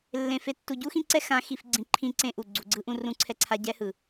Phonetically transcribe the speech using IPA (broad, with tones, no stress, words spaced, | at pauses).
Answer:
lːẽ˨ fe˨tːu˨ɟu˦ xĩ˦ǀɛ˦ xã˨˦xi˨fɡ͡ǀĩ˨ ǃʰĩ˦ǀẽ˦ʔu˨ ɡ͡ǀu˨ɡ͡ǀɯ˦ʔũ˦ rũ˦ǀʰɛ˦ǀʰa˦ ɟɛ˦hɯ˨